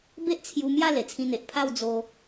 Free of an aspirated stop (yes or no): no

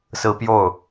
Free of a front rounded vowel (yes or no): yes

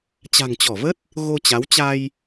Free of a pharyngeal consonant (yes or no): yes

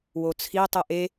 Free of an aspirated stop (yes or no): no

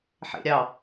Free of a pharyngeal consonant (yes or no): no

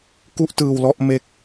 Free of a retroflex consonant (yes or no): yes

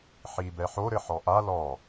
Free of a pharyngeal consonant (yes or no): no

